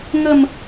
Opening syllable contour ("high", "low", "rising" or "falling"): falling